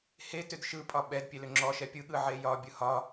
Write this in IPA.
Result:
hetʏd ʃɯpʼɒ ɓɛd pʲelʏŋ͡ǁɔʃɛ pʲɯɠɯ ʕejɒbʲɯ hɒ

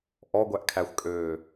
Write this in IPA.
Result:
ʔɔɡʷæʔkʰæxʷkʼøː

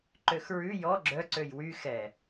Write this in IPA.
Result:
ǃøxɹʉ jɔ ɡ͡ǁœ ǀøjwy xɛ

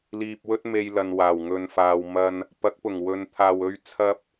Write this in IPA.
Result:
liː˧p̚wɵ˥t̚me˧j lɐ˨nwaː˨˩wŋɵ˨nfaː˨w mɐ˧n | pɐ˨˥k̚pʊ˨˩ŋwɵ˨nt̪ʰaː˨w ɵ˧ɥ t͡sʰɐ˥p̚

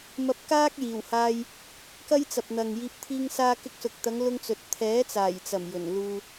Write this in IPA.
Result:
mɐ˧p̚kaː˥k̚jiː˨˩whaː˧j | kɐ˥jt͡sɐ˨p̚n̪ɐ˨ŋjiː˧p̚ t̪ʰiː˧ŋ saː˧kɪ˧k̚sʊ˨k̚t̪ɐ˨˧ŋ lʊ˥ŋt͡sɵ˧t̚ t̪ʰɛː˨˥t͡saː˨˩jt͡sɐ˨˩m jɵ˨˩nluː˧

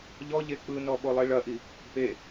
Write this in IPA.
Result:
ʎɔʎe k͡pɯnɔ ɓolˠiɭɐʔi | pe

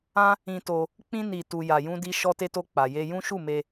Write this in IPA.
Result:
ã˦ | ĩ˧ to˧ | k͡pĩ˧ni˨ tu˨ja˨jũ˧di˧ ʃɔ˧te˧to˧ k͡pa˨je˧ jũ˦ ʃu˦˨me˧

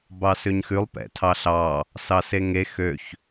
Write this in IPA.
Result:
bɑsøɲxʉlˠ pɛ̰tʰɑɬɑ | sɑseŋe xøç

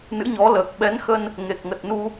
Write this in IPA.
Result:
nɨ̰˧˥ɲɔ˨˦ləː˨˩k̚ɓɛ˨˦n xə˧n | ŋe˨˩k̚ŋə˨˩t̚nu˧

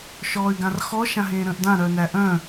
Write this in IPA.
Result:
ʃɔːy̯ɡãrxɔ ʃãɦẽːɾə̃ːʔdã ɾœnæʔœ̃

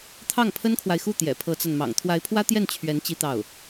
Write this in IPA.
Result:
t̪ʰɑ˥˩ŋpʰə˥nkʰwa˨ɪ̯xu˥˩ t̪jɛ̰˨˩pʰɤ˧˥t͡sa˧nmɑ̰˨˩ŋ t̪ʰwa˧˥ɪ̯pʰwä˥t̪jɛ˥˩n t͡ɕʰɥɛ˧˥n t͡ɕi˥t̪ɑ˥˩ʊ̯

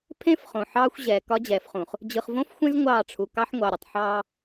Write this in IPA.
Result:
pʰẽ˦f χõ˨ħɑː˦xʷ ʑɛː˨kɒ˦d͡ʑɛː˨fχũ˨χ | d͡ʑɯ˨χvõ˦fxʷẽ˦z ŋʷɑː˦˨ʈ͡ʂʰu˨ kɑ˦ħŋʷɑ˨ ɾʲə˨tˤħɑː˦

